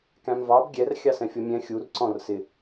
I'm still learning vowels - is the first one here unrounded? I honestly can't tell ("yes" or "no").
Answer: yes